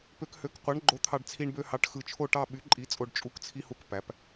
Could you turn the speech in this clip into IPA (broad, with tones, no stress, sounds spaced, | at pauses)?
p ø˧ k h ø˨˥ k qʷ ɑ˨˥ ɳ ɡ͡ǃ o˨˥ t̪ʰ ɑ˧ ɖ t͡sʰ i˧ ɳ b ø˧ h ɑ˨˥ ʈ x ɯ˧ t͡ʃʰ o˥˧ ʈ ɑ˥˧ ɓ y˨˥ ǃʼ i˨˥ t͡sʼ o˧ ɖ t͡ʃʼ u˨˥ k t͡sʰ i˧ h u˧ k p æ˨˥ p